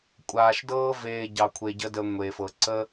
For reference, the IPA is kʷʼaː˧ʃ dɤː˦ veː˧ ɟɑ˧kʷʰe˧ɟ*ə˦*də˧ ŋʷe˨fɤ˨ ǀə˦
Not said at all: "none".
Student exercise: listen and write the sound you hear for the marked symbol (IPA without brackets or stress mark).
ə˦